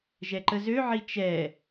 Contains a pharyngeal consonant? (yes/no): yes